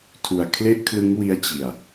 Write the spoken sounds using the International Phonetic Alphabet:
tʰu˧a̯ kʰle˥˩ʔkʰlɯ˦˥ŋwi˦˥a̯ t͡ɕi˧a̯

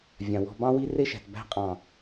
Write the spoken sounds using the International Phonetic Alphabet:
vʲã˨wɔ̤˧bɑ̃˦wi˦ re˦ʃæ̤˨t bæ̤˧qʼɑ̃˨

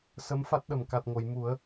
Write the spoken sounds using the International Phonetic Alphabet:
sə˧˥mfa˦˥t̚ɗə˨˩m ka˨˩t̚ŋo˨˩˨jmu˨˩˦ə̯

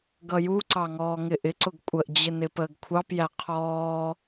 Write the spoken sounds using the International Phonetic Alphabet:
ɡʌjuǀɑ ŋɔːŋɪʔɪǀʊɡ kʷʼəʔd͡ʑɪ nɪpəːɡkʷʰɑpjæ qʰɔː

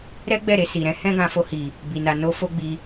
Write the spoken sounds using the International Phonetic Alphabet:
ɾɛ˦ɡ͡bɛ˦˨ ɾe˧si˨ɾɛ̃˨˦ hɛ̃˦ɡã˧fo˧hi˨ | bi˨na˨no˧ fo˦ɡ͡bi˧

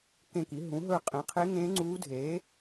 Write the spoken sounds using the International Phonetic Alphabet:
kẽ˦˨ki˩˥ ɦũ˩˥ɦɵ˦˨ qʼẽ˩˥qʰe˧˥ ŋẽː˧˥ŋ͡ǀuː˧˥dʱeː˩˥

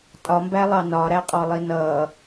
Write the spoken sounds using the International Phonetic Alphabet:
tʼɒmbælˠɑ nɒɾæqʼɔlˠi nʌ

